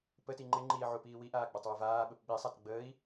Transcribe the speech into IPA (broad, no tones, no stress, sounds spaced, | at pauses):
p ə t i ŋ͡ǃ ɪ ŋ͡ǃ iː ʕ u p iː w i ʔ aː ɡ͡b ɐ tˤ w ə v aː ɓ ə p ɓ i sˤ a t ɡ͡b əː i̯